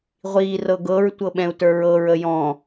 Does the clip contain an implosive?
yes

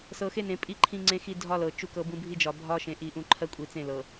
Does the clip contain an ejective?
yes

